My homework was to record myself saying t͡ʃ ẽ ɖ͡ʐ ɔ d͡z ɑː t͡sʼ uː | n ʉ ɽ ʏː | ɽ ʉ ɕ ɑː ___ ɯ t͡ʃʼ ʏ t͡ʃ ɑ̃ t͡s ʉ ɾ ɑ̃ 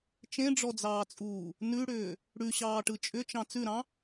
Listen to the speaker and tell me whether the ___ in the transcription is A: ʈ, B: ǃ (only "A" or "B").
A